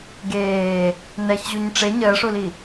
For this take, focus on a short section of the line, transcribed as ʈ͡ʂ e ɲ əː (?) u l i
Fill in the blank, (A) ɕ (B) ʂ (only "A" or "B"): B